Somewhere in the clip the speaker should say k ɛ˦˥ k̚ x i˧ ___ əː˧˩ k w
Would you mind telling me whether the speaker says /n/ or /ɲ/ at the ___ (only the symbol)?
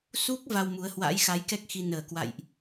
n